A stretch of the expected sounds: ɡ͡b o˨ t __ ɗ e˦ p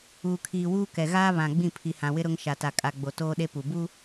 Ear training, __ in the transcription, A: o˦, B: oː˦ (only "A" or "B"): B